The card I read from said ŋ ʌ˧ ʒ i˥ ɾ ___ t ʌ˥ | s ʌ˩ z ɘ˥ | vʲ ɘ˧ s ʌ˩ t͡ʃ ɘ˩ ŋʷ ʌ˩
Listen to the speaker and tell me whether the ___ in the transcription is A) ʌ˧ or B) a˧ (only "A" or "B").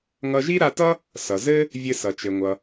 B